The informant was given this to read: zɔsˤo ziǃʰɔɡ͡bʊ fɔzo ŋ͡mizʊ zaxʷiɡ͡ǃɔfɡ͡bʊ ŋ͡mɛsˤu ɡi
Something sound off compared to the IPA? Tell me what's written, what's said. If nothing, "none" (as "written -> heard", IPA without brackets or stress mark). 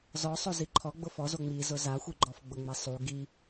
none